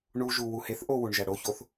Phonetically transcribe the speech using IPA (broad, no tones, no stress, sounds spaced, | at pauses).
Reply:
ɳ u ʒ u w u h e θ ʔ o w u ɳ ʒ æ ɽ o ç o θ